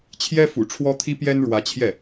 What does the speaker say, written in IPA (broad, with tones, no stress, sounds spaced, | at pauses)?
t͡ɕʰ j ɛ˥ f ṵ˨˩ ʈ͡ʂʰ w ɔ˥ t̪ʰ i˥ p j ɛ˥ n ɻ w ä˧˥ t͡ɕʰ j ɛ˥˩